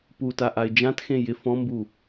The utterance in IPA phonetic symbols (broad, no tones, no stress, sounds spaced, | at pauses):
p u t a ʔ a ɪ̯ d͡ʒ ã t x ẽ j ɪ f ɔ̃ m b u